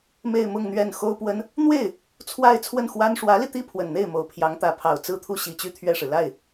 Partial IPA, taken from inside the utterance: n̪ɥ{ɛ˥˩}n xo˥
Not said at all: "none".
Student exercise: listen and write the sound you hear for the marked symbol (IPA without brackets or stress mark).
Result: ɛ˥˩